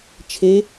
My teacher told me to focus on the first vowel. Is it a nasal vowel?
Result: no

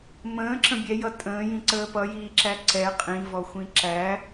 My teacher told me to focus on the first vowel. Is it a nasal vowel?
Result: yes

